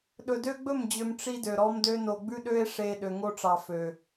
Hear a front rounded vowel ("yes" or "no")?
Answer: yes